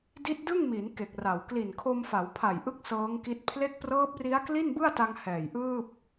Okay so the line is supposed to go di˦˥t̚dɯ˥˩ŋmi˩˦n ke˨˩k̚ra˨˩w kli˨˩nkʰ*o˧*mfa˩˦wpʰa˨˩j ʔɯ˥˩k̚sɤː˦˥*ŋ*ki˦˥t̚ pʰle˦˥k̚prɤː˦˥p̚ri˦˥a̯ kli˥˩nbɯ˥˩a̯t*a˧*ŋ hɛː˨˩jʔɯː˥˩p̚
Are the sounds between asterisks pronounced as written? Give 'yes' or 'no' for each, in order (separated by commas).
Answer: yes, yes, yes